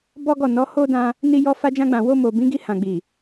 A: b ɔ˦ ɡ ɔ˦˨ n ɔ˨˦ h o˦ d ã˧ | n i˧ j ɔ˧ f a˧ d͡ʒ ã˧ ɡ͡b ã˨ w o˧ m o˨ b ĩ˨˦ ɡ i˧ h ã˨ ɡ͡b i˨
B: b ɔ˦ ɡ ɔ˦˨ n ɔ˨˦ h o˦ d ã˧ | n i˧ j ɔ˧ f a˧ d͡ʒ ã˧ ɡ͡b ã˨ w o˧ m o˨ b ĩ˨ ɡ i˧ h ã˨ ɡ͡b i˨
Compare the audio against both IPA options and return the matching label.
A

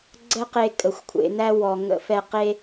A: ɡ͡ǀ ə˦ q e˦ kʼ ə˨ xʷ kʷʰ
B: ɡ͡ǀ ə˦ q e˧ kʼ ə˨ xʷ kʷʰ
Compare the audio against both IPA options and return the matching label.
B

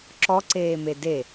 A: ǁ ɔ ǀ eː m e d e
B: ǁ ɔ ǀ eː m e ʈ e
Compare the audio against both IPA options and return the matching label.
A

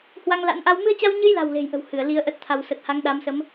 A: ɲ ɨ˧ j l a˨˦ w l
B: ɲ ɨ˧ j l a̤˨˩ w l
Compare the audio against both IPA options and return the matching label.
B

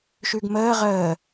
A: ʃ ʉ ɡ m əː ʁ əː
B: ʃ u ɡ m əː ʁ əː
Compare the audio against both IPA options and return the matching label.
A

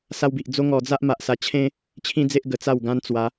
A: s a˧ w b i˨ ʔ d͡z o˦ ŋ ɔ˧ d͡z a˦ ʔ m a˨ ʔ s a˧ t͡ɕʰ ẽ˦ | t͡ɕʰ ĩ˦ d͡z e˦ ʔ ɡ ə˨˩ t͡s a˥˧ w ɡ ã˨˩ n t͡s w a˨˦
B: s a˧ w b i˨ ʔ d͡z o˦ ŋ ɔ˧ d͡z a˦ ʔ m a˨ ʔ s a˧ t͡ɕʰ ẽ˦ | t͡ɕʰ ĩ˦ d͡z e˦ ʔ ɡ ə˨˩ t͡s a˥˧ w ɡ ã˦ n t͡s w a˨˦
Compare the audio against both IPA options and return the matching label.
B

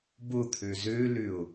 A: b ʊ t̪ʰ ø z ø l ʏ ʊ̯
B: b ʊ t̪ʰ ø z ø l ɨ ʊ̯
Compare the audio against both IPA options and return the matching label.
A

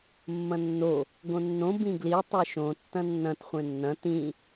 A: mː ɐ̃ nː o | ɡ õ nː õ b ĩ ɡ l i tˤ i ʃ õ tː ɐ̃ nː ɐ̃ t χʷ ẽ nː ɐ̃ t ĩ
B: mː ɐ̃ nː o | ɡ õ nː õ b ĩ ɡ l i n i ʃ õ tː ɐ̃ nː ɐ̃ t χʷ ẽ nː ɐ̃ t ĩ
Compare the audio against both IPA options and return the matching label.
A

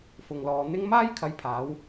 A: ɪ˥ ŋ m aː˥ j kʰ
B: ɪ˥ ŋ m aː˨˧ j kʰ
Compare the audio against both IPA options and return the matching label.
A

